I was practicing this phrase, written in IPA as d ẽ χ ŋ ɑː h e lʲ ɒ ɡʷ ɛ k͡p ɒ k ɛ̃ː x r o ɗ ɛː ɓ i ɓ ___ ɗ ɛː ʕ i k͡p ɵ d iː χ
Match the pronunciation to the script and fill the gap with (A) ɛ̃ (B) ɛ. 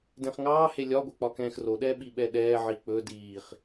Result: B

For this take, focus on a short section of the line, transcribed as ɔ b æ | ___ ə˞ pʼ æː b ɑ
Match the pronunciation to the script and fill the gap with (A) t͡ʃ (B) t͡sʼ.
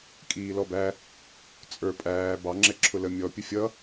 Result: B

